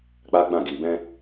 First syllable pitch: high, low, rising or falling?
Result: high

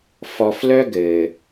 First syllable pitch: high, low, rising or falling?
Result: low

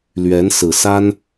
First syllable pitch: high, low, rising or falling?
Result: rising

